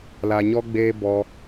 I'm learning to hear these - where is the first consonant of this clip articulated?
tongue tip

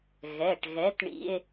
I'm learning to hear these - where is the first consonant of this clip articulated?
velum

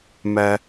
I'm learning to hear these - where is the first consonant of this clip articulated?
lips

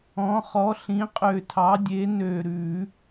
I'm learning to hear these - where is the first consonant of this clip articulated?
uvula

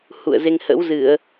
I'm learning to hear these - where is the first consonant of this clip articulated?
throat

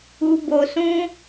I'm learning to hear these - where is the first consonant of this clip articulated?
lips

